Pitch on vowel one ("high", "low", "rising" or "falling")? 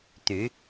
rising